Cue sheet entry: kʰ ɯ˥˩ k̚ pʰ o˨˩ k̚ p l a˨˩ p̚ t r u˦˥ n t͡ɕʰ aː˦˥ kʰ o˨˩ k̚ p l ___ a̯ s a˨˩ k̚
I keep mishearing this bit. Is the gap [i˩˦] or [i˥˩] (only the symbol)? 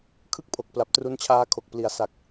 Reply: i˩˦